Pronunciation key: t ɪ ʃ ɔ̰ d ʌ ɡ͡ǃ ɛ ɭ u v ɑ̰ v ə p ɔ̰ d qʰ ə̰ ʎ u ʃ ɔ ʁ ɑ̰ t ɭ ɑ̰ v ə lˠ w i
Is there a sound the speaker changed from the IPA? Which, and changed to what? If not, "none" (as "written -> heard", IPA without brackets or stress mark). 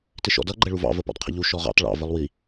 none